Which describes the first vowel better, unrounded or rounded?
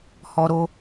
rounded